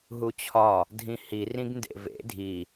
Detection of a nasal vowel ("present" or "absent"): present